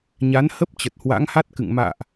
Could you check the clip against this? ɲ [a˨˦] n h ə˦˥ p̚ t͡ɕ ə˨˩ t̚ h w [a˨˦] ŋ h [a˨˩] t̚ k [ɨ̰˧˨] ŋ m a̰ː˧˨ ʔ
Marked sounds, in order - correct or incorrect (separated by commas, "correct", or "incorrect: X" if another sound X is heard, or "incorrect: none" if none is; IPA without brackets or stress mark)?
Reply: correct, incorrect: a̰˧˥, incorrect: a˦˥, correct